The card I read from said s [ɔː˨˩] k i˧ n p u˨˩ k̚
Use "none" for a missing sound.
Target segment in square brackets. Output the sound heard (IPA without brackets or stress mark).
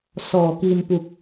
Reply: ɔː˨˩